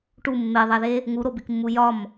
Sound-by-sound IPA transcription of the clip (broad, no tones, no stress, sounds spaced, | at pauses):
ʈ u mː e ðˤ æ ð e | ŋ u ɾ o b i k mː u j ɒ m